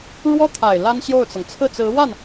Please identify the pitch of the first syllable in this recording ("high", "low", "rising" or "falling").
high